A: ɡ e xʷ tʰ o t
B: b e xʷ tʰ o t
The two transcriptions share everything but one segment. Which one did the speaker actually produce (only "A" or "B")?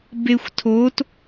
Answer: B